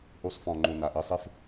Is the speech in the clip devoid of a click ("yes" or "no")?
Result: no